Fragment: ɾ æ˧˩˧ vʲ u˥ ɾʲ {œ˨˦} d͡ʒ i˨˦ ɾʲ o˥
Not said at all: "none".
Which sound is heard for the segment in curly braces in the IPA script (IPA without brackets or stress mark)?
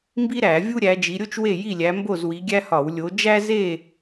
æ˨˦